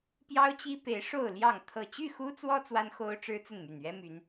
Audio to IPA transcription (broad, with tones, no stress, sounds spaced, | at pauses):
p j ɑ˦ ʊ̯ t͡ɕ i˦ p e˨˦ ɪ̯ ʂ o˥˨ ʊ̯ l j ɑ˥˨ ŋ t̪ʰ ɤ˥˨ t͡ɕ y˥˨ x u˦ t͡s w ɔ˦ t͡s w a˦ n x o˦ ʊ̯ ʈ͡ʂ ɻ̩˦ t͡s ə˥˨ n m y˨˩ n ɥ ɛ˦ m y˨˦ n